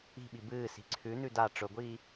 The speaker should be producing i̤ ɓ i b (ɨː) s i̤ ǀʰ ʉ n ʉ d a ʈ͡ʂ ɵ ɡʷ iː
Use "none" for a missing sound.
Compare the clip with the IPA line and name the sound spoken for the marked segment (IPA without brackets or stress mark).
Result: ɨː